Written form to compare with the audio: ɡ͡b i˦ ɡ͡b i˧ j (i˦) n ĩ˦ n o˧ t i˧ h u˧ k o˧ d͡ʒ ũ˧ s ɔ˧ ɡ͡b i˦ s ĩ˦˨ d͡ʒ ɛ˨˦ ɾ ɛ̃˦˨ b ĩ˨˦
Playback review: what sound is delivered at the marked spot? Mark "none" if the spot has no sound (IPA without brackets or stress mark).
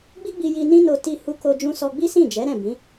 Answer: i˧